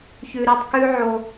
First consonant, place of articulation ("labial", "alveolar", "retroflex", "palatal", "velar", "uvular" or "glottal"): palatal